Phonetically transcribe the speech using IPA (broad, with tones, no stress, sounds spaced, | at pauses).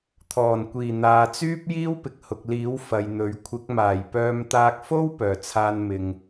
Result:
t̪ʰ ɔː˨˩ n kʷ iː˨˩ n̪ aː˨ t͡s yː˥ p̚ j iː˥ w p ɪ˨ k̚ h ʊ˨ k̚ l iː˨˥ w f ɐ˨ j n̪ ɵ˨˥ ɥ kʷʰ ɪ˨˥ k̚ m aː˨˩ j p œː˧ m t̪ aː˧ k̚ f o˥ w p œː˨˩ t͡sʰ aː˧ n m ɪ˨ ŋ